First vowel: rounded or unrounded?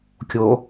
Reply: rounded